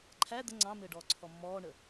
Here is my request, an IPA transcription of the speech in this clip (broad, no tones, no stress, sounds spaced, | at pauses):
ǃʰ æ d̪ ə ŋ͡ǀ ɑ̃ m ɘː ɖ ɔː ǀʰ ɔ mː ɔː ɳ ə